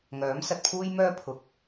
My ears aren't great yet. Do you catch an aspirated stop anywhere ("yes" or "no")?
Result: yes